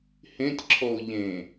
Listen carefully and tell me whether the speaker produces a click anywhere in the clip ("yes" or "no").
yes